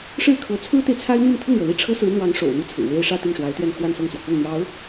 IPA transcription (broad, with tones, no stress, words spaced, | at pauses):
ʂɻ̩˥˩kʰɤ˧˥ t͡sʰɹ̩˥t̪e˨ɪ̯ t͡sʰa˥ɪ̯n̪y˥˧n t̪ʰɤ˥˩ŋɻɤ˩li˥˩ ʈ͡ʂʰɤ˥sɹ̩˧˥n̪wɑ˧˥ŋ ʂo̰˨˩ʊ̯n̪u˥˩t͡sʰɹ̩˨˩ we˥ɪ̯ʂä˥˧ t̪i˥˩ŋʂwa˧˥ɪ̯t̪ɥɛ˥˧n xwa˥˧nsɤ˥˩ŋt͡swɔ˩ kʊ˥˩ŋn̪jɑ˧˥ʊ̯